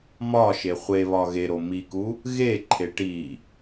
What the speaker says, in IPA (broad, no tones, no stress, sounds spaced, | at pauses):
m ɒ ʃ e χʷ e β ɒ ɣ e ɾ o m i k u | ɣ e ǃʰ e ʈ i